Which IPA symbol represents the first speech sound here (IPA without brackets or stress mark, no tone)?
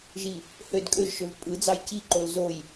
ʒ